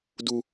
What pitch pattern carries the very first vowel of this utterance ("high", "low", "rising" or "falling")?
high